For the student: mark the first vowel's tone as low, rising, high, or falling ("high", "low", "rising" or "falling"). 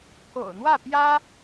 low